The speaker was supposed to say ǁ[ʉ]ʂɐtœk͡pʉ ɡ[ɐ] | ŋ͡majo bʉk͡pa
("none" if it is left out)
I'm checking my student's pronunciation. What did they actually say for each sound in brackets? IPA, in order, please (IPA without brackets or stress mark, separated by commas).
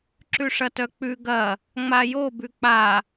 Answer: ʉ, ɐ